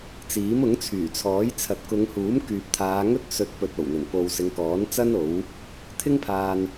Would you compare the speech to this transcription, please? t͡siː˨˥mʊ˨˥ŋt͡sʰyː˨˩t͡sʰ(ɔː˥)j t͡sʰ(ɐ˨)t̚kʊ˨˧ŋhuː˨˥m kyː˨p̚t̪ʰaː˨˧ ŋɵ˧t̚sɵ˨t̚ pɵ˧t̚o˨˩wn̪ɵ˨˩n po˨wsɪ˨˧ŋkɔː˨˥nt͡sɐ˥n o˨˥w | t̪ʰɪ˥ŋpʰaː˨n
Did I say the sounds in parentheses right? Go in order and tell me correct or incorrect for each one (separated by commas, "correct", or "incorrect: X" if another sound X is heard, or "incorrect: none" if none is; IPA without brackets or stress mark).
incorrect: ɔː˨˥, correct